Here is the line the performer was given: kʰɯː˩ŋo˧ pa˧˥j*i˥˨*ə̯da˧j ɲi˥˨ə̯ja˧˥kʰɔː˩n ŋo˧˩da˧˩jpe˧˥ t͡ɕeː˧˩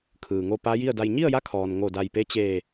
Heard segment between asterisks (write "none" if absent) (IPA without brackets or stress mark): i˥˨